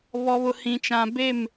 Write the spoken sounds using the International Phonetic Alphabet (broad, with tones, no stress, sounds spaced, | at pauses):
β ɔ˨ β ʊ˨ h ĩ˨ t͡ʃ ã˨ b e˦˨ m